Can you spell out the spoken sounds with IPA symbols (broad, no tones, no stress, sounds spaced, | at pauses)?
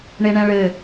ɳ e ɳ ɛ̃ ɭ ɘ